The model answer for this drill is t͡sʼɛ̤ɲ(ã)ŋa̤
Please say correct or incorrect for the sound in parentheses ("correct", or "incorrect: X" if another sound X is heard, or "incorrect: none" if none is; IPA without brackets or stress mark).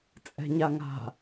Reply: incorrect: a